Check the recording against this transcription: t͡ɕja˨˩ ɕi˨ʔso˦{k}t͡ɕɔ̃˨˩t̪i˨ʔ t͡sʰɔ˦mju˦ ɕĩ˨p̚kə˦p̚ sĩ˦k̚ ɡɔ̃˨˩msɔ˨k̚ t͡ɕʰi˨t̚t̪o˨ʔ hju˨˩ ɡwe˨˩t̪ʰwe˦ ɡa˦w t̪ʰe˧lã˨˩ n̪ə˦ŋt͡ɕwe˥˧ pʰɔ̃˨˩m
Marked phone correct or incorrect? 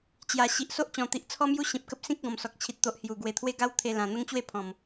incorrect: ʔ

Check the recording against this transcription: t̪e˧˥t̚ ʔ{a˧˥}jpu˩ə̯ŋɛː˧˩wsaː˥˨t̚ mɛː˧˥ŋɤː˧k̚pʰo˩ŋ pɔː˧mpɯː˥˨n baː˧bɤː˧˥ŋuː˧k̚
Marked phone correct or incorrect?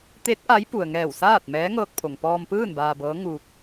correct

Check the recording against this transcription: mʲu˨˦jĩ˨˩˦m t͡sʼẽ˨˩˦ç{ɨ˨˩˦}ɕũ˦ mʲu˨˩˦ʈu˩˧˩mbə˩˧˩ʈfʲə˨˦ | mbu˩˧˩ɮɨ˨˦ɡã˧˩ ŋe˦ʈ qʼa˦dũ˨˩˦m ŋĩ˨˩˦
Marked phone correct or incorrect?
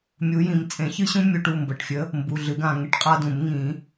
incorrect: ɨ˦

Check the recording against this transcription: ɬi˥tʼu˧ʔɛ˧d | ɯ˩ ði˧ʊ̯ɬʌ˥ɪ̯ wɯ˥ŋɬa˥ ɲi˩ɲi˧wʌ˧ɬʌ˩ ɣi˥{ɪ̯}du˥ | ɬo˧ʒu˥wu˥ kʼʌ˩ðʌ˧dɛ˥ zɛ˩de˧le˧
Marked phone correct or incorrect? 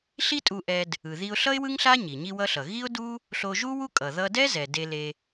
incorrect: ʊ̯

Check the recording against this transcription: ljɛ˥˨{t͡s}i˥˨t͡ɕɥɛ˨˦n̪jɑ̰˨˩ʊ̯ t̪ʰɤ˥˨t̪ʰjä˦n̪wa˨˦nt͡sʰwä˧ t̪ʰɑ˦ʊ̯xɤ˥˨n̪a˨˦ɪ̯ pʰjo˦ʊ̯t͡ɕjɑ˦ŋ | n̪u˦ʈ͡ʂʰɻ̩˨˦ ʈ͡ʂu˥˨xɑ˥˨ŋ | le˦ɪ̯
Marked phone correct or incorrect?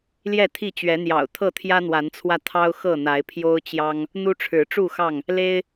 incorrect: t̪ʰ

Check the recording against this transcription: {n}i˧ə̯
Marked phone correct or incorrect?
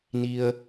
correct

